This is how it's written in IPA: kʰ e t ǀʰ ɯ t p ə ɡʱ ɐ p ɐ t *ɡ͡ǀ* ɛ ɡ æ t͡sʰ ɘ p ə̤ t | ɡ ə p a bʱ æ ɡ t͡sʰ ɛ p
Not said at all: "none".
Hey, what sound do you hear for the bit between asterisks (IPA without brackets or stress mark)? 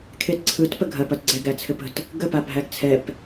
ɡ͡ǀ